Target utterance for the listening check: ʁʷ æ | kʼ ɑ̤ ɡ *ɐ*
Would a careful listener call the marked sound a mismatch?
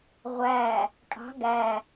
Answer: yes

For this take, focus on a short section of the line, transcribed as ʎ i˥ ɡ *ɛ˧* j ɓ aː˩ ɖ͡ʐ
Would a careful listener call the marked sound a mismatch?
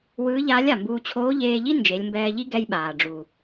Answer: no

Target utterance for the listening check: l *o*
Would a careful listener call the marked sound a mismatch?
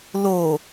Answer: no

